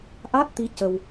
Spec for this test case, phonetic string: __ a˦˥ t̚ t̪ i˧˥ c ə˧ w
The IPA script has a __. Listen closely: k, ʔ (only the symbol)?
ʔ